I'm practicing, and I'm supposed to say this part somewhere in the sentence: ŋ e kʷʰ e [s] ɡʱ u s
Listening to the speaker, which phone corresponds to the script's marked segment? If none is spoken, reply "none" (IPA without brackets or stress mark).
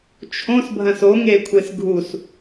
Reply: s